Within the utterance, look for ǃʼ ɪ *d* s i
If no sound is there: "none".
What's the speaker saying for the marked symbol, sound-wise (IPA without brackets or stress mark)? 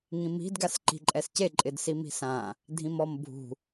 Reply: d